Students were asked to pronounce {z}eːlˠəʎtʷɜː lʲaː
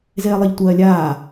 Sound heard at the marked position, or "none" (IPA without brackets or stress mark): z